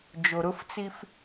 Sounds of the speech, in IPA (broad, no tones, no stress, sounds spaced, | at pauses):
d͡ʒ o ɾ ʊ f t͡s i f